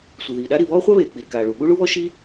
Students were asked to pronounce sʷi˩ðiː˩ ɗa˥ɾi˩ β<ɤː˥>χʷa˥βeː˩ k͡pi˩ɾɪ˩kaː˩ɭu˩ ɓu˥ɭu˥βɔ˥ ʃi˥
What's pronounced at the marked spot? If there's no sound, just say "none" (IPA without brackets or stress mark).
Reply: ɔː˥